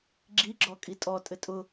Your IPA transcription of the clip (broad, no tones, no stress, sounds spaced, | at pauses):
ɡ͡ǁ i ɡ͡ǁ ɔ kʼ i tʼ ɔ tʼ ɘ tʼ ʊ